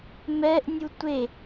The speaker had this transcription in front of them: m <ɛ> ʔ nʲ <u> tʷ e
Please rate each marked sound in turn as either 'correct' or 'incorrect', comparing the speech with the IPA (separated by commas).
correct, correct